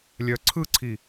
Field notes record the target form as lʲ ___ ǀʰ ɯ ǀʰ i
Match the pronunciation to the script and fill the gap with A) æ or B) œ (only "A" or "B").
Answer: B